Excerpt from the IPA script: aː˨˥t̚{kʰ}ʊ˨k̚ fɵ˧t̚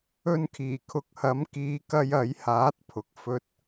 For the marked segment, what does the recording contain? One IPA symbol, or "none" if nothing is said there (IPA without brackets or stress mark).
pʰ